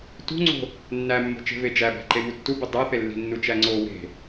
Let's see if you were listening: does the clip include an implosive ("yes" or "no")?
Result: no